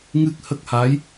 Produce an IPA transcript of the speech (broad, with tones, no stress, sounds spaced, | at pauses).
ŋ ɨ˦˥ k̚ h ə˦˥ k̚ h aː˧˥ j